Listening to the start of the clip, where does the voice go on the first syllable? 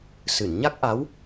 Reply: low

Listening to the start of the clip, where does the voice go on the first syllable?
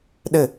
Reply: falling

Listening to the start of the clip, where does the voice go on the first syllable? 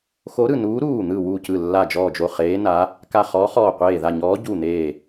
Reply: rising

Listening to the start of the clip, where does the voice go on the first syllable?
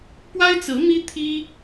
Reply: high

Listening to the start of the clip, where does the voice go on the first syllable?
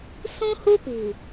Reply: high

